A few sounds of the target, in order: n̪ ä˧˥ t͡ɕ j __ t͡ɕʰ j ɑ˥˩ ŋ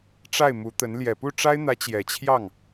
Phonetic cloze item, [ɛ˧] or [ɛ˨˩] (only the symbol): ɛ˨˩